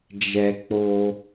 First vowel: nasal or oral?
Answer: oral